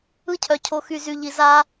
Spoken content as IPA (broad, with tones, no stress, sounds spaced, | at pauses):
ɯ˥ cʰ œ˨ cʰ o˨ x y˨ z y˨ ʎ i˨ z a˦